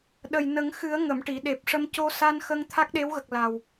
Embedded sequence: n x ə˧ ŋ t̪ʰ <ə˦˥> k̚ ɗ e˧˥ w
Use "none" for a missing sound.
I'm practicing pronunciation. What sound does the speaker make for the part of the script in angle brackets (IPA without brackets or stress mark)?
a˦˥